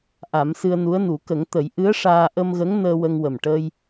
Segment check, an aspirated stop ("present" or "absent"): absent